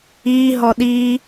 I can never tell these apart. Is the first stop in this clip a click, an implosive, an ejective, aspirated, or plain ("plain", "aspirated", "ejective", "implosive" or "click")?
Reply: implosive